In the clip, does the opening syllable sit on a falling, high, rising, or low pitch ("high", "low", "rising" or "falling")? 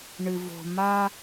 low